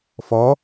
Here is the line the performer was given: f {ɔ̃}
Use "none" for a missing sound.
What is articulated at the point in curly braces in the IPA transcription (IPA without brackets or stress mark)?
ɔ